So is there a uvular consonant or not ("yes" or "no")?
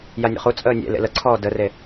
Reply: yes